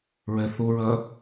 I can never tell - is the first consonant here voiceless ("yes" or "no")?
no